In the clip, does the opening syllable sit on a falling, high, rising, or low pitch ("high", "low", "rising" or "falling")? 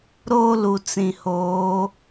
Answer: high